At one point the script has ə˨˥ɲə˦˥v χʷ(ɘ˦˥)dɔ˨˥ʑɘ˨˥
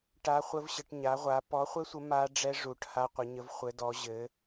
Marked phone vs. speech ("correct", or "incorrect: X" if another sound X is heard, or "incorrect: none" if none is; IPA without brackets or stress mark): incorrect: ɘ˨˥